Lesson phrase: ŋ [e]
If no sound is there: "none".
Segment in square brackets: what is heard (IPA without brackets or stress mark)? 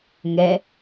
ɛ